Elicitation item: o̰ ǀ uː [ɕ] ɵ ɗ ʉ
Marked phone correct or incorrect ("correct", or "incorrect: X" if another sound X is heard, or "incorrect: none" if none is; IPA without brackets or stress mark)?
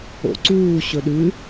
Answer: correct